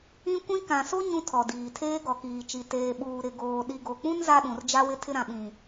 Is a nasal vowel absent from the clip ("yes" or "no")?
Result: no